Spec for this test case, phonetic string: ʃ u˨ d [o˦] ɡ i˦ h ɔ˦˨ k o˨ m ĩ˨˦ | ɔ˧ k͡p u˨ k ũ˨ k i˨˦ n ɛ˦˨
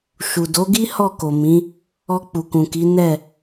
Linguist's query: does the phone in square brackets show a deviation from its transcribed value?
yes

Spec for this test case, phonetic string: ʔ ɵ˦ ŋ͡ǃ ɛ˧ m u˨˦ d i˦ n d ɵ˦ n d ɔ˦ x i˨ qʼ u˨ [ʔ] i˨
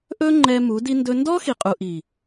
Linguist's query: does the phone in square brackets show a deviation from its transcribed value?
no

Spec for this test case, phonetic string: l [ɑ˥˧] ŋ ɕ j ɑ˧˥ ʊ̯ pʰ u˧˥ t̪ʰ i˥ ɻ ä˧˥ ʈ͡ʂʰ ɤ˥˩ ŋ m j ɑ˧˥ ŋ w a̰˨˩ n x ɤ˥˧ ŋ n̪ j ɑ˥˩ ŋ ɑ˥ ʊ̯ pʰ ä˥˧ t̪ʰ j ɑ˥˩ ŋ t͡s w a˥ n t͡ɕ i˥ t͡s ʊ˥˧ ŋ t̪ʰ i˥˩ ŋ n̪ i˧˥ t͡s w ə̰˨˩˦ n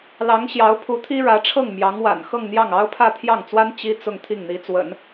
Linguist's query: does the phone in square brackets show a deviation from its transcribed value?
yes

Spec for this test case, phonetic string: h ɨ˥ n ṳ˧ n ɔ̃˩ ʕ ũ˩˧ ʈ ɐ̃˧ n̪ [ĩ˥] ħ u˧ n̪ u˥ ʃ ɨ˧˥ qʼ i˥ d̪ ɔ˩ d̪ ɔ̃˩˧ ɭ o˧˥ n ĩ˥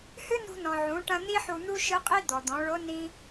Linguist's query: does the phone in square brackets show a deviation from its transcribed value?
yes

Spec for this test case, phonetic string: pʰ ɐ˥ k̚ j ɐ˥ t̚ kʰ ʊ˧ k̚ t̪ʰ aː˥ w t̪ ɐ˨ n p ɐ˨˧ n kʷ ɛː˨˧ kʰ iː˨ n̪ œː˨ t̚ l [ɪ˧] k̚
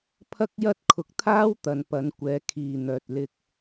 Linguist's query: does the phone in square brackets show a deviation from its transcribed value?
no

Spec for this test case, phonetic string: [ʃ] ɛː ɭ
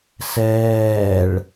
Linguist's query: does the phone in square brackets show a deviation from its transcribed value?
yes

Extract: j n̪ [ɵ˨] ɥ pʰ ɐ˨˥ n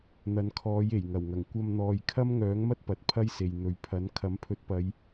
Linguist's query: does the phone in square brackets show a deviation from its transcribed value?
no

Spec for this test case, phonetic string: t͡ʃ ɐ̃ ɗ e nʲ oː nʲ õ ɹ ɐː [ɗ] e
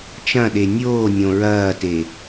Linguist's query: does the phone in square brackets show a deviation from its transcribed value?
yes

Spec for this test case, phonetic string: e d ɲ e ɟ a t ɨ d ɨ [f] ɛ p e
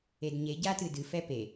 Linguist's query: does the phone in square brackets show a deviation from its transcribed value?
no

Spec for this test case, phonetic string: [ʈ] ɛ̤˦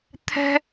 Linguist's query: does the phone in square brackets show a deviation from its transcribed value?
yes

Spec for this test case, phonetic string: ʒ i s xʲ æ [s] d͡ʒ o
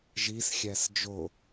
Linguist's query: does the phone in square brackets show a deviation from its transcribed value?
no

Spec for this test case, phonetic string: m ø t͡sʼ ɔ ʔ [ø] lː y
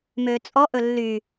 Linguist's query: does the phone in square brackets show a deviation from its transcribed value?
yes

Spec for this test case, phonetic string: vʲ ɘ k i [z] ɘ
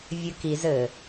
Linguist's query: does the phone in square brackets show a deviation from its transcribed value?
no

